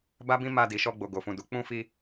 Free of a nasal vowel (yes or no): no